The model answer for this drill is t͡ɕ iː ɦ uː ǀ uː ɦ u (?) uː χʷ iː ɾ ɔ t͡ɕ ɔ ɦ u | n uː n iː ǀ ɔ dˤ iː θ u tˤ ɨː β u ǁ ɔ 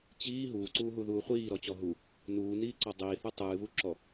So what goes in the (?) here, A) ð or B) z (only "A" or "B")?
A